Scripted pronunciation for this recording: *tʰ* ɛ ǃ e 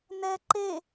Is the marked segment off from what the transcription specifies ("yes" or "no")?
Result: yes